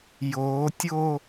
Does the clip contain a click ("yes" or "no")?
no